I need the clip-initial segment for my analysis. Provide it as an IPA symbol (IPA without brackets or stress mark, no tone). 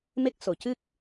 m